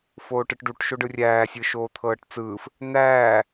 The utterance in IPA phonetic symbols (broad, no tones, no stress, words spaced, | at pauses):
foːʈɯʈɖuʈ ʃoɖɯrʲæː sʲɯʃoːt̪ʰɤːʈt͡sɯːf | n̪æː